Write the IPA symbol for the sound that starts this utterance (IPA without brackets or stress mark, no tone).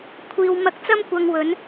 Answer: kʷʰ